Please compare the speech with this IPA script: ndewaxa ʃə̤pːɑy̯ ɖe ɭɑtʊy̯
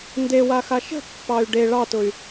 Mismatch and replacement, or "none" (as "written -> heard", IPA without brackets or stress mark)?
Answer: none